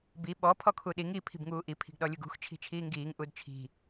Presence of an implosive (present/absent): present